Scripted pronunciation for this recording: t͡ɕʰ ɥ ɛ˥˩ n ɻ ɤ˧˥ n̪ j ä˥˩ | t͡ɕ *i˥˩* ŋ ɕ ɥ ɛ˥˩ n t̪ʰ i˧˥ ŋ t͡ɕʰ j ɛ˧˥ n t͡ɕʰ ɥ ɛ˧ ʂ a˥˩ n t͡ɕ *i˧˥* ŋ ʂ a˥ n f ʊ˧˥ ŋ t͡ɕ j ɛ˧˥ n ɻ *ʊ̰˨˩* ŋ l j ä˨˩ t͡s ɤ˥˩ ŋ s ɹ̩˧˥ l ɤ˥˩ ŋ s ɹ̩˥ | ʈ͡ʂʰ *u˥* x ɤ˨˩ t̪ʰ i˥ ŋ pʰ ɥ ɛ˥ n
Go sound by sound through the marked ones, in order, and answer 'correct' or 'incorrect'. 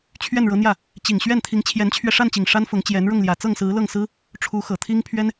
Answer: incorrect, incorrect, incorrect, incorrect

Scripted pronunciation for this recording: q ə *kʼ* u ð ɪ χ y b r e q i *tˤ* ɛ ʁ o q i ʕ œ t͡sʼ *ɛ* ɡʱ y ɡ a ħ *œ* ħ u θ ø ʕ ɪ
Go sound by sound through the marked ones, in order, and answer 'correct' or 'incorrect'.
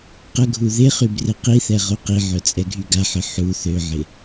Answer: incorrect, incorrect, correct, incorrect

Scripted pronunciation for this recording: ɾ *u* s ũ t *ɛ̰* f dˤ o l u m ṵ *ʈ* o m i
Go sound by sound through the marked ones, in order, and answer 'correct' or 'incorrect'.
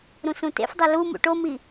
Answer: incorrect, incorrect, correct

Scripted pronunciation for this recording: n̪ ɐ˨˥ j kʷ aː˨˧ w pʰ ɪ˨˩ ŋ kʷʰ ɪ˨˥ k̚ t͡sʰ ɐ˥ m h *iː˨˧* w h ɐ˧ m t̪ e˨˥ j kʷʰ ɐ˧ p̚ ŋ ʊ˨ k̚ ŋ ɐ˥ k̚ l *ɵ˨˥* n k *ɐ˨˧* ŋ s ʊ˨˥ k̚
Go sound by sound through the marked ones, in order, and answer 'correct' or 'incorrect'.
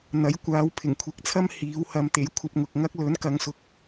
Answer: correct, correct, correct

